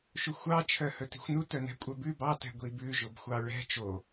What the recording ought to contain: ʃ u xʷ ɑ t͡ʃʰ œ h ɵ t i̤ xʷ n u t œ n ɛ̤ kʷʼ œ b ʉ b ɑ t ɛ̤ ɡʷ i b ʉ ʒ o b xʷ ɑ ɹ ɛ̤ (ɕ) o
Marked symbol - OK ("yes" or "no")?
no